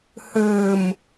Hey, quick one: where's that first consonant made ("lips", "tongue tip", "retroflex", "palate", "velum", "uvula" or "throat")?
throat